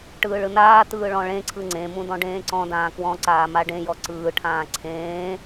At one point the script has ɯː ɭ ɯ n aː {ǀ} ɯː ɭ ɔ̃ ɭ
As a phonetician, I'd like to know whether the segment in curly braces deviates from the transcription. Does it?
yes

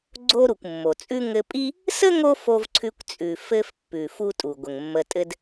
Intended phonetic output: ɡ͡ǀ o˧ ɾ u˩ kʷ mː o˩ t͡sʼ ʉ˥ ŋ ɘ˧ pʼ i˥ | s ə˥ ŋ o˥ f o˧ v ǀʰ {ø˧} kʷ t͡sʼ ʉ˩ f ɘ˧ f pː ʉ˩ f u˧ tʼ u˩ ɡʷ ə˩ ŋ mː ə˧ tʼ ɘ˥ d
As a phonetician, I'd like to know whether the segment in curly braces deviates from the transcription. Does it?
yes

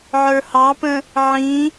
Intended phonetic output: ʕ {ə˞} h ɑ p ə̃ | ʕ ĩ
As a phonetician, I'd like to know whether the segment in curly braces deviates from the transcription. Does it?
no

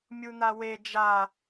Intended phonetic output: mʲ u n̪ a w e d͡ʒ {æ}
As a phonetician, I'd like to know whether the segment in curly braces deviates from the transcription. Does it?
yes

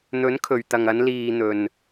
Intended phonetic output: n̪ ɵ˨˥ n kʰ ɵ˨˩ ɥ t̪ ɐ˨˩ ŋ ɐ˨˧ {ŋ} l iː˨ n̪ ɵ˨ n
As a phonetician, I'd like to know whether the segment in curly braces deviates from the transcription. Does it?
yes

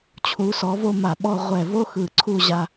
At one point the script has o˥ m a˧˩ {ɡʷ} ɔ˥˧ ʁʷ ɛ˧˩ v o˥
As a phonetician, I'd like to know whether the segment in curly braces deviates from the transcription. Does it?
yes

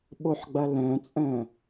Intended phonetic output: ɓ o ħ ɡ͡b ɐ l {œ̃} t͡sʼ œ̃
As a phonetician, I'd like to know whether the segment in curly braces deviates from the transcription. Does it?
no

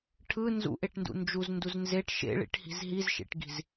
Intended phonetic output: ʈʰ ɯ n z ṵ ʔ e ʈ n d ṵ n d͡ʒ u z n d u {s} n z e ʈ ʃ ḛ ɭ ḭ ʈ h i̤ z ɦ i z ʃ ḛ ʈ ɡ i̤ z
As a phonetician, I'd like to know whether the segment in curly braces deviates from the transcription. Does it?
yes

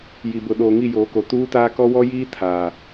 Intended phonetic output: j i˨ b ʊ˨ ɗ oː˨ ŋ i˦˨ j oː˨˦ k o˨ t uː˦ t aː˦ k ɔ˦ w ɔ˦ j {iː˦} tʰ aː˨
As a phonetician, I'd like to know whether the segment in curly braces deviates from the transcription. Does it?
no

